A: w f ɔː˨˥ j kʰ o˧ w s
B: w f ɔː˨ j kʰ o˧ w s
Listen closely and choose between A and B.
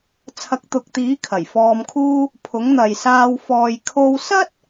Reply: B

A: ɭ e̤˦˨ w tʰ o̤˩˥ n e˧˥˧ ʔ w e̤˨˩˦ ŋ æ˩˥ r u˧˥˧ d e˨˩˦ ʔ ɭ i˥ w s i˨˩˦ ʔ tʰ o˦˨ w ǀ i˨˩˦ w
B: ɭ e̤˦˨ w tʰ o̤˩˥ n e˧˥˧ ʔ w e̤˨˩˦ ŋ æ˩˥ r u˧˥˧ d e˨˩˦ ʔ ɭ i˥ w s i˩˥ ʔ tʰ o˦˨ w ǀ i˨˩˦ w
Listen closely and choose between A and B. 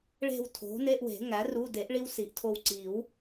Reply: A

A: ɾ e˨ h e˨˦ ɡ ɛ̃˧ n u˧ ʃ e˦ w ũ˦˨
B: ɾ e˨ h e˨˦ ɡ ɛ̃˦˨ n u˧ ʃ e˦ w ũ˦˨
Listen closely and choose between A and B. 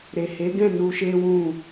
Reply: B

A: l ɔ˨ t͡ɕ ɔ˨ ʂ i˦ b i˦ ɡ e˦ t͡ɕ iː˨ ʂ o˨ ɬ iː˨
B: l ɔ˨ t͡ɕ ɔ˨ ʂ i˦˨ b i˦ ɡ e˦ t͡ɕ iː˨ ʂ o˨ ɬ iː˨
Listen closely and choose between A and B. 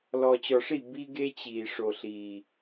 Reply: B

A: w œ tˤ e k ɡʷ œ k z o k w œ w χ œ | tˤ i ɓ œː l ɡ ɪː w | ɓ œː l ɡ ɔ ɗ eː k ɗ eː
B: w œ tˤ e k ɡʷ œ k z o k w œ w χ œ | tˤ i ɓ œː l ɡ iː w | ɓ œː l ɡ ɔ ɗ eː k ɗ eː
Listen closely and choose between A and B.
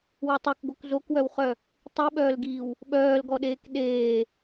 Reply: B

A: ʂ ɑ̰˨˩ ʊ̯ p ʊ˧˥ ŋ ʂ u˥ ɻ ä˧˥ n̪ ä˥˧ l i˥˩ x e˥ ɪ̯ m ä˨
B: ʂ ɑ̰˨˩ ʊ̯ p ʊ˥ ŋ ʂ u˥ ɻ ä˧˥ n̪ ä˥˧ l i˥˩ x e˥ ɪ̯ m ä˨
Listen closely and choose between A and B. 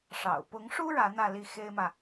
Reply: A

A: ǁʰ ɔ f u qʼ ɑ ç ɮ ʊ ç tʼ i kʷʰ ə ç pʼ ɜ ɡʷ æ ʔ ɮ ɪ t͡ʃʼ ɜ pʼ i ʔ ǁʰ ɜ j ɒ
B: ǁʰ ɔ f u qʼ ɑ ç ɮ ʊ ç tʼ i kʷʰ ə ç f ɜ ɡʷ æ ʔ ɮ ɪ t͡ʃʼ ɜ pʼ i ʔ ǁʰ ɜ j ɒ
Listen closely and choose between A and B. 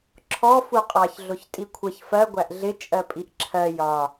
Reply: B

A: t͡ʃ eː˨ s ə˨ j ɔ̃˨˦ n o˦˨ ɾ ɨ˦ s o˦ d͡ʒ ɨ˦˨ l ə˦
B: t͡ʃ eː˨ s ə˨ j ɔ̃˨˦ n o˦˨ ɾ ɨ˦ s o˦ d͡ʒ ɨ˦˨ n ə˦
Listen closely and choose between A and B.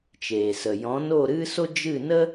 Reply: B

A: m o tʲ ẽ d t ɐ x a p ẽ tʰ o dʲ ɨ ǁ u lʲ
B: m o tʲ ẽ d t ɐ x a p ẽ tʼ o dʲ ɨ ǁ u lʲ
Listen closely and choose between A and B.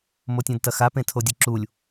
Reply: A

